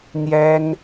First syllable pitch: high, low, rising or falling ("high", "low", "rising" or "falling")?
high